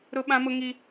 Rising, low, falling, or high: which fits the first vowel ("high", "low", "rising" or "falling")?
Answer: high